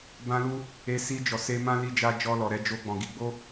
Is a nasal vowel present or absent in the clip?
present